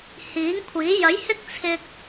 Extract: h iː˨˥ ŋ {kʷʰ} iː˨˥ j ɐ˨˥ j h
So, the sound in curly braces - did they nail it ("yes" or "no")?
yes